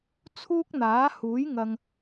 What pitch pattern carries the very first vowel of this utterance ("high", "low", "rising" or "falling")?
high